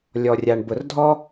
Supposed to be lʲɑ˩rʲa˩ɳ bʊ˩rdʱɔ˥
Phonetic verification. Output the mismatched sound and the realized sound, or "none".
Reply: ɑ˩ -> ɔ˩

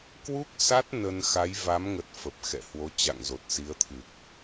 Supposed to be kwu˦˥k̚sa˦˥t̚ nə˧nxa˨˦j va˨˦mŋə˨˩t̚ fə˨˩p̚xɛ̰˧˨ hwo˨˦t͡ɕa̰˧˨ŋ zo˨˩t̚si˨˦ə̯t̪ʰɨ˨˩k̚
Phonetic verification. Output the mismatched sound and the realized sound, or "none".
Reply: none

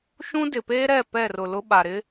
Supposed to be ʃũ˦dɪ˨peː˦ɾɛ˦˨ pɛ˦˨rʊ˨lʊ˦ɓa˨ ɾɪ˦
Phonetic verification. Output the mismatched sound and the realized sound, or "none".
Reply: none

